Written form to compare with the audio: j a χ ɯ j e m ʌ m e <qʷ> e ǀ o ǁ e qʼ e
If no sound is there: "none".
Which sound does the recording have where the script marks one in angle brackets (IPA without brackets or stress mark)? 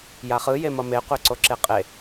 qʷ